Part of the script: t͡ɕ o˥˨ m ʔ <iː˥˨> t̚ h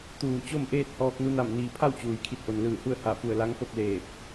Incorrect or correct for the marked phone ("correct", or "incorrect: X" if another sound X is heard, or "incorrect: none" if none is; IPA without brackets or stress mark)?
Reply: incorrect: eː˥˨